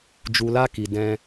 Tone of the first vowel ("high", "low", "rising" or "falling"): low